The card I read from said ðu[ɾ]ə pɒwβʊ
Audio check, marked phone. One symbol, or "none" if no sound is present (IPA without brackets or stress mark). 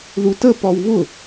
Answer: t